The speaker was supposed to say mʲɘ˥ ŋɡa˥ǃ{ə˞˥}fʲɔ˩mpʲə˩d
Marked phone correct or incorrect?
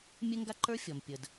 correct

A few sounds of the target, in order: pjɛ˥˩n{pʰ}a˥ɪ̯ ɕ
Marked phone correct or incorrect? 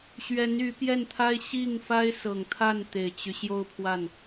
incorrect: t̪ʰ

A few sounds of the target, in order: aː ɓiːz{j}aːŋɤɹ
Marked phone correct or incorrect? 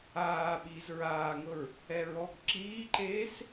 incorrect: ɹ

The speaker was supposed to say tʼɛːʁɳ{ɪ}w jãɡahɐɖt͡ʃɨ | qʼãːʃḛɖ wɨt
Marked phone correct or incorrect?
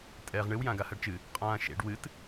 incorrect: ɨ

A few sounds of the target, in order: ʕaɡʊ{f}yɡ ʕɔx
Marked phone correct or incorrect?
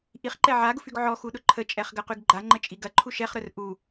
correct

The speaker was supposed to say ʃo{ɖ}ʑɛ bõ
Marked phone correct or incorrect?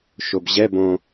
incorrect: b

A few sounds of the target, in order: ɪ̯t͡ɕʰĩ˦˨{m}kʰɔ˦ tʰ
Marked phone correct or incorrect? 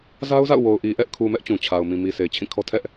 incorrect: none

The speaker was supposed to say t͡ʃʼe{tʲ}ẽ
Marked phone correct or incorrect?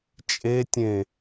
correct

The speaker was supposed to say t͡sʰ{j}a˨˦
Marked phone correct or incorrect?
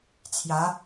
correct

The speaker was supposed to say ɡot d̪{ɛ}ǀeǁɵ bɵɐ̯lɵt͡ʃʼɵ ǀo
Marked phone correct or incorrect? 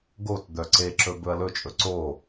incorrect: œ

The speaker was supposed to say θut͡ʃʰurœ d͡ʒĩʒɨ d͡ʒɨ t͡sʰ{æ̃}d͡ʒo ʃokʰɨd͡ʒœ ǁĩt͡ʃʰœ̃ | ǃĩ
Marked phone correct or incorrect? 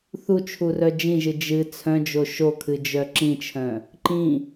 incorrect: œ̃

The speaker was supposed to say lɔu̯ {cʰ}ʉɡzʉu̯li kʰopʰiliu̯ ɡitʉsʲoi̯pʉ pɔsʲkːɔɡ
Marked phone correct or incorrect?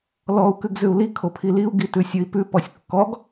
incorrect: k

